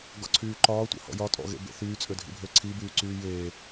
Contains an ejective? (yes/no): yes